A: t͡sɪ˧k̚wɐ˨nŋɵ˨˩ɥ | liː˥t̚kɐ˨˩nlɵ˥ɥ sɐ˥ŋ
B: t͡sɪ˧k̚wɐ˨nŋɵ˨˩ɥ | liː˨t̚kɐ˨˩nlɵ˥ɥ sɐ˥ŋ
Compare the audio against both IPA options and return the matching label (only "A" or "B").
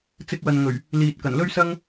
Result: B